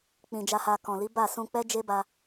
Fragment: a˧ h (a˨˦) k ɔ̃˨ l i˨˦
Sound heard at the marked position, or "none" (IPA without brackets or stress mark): a˧